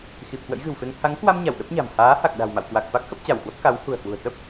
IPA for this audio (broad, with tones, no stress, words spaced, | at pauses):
xi˨˩p̚kwə̰˧˥jɣɨ̤˨˩wfe˧ŋ t̪ʰa˨˦ŋkwa˧m ɲa˧˩w ɗə˦˥p̚ɲa̤˨˩m haː˨˦ha˨˩k̚ ɗa̤˨˩wma̰˧˨wkwa˨˩k̚fa˦˥k̚ xə˦˥p̚t͡ɕa˧˩whwə˦˥p̚ ka˨˦whṳ˨˩ə̯hwṳ˨˩ə̯ t̪ə˦˥p̚